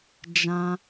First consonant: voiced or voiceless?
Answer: voiced